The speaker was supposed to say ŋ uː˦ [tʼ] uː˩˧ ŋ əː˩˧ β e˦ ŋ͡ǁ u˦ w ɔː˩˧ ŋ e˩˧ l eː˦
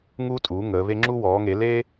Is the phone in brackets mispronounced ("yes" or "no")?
no